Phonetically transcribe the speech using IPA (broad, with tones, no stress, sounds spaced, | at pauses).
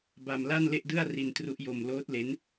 b a˧ m l a˥˩ n l e˥˩ ʔ d ɯ˥˩ a̯ r i˧ n t r u˦˥ ʔ j o˧ m l oː˦˥ t̚ l e˦˥ n